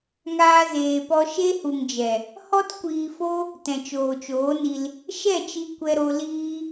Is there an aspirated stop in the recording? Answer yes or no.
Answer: no